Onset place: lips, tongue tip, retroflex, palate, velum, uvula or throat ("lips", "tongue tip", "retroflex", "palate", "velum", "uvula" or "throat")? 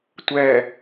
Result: tongue tip